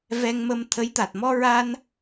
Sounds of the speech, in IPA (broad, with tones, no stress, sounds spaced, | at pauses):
v ɛ˧ ŋ m ə˧ m t̪ʰ ə˧˥ j t̪ a˨˩ t̚ m ɔ˧ ɹ a˧ n